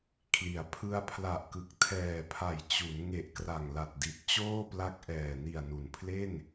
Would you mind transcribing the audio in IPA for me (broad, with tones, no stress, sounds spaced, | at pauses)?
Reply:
kʰ l i˩˦ a̯ pʰ ɯ˧ a̯ pʰ l a˨˩ ʔ k ɯ˨˩ k̚ tʰ ɛː˨˩ pʰ a˨˩ j t͡ɕ u˩˦ n ŋ e˨˩ ʔ k r a˨˩ ŋ l a˨˩ t̚ d i˨˩ t̚ t͡ɕ oː˥˩ p l a˦˥ k̚ ʔ ɛː˨˩ n i˨˩ a̯ n u˩˦ n pʰ l e˥˩ n